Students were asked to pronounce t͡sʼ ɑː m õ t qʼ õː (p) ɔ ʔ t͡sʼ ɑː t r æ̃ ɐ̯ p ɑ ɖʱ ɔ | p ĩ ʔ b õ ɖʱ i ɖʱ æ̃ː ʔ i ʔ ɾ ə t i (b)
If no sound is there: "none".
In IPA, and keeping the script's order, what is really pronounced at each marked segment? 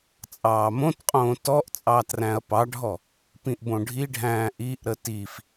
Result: t, f

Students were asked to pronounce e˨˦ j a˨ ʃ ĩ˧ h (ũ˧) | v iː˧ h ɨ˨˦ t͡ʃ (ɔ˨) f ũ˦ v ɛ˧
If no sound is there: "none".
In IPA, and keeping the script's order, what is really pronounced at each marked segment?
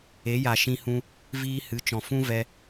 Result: ũ˧, ɔ̃˨

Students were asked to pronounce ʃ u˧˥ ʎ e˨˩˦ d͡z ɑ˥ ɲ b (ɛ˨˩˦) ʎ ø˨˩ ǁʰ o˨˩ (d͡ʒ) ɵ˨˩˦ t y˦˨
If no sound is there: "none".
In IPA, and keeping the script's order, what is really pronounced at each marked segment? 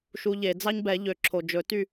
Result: ɛ˨˩˦, d͡ʒ

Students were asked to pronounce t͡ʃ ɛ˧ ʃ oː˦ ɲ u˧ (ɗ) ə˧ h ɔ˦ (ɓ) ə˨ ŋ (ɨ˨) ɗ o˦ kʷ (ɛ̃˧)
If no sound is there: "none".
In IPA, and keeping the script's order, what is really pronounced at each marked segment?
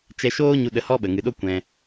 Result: ɗ, ɓ, ɨ˨, ɛ̃˧

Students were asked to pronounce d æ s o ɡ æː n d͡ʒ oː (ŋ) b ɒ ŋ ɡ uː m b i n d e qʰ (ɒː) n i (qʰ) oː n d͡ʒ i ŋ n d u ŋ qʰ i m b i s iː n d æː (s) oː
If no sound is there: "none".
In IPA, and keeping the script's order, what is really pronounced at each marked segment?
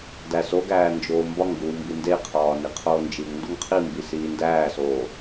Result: m, ɒː, qʰ, s

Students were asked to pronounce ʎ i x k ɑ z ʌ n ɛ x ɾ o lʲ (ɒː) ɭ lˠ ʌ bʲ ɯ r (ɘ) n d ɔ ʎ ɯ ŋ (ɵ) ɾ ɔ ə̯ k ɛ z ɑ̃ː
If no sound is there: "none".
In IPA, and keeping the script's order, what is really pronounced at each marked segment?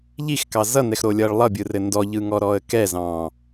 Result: ʌː, ɘ, ɔ

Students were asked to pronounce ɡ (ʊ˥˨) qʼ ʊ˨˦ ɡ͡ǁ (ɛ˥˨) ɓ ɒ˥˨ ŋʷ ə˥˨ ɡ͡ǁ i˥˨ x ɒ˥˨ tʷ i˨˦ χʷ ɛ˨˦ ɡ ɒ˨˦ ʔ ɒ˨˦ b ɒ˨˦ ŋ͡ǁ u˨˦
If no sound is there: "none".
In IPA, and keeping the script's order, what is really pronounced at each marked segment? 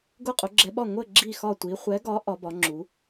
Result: ʊ˥˨, ɛ˨˦

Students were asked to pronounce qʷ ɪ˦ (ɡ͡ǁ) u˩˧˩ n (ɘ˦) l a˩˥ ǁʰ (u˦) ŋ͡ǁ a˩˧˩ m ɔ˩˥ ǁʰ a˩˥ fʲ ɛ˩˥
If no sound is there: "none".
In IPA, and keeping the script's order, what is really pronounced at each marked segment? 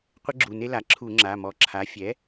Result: ɡ͡ǁ, e˦, u˧˩˧

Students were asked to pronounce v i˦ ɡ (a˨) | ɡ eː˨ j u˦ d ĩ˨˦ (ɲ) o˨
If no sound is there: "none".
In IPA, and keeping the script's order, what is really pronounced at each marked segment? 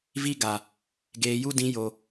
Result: a˨, j

